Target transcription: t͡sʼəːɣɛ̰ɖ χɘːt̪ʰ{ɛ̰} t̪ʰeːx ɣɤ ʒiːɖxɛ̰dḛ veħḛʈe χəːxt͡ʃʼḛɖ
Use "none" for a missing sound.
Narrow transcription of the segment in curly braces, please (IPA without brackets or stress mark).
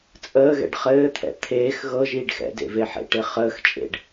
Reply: ɛ̰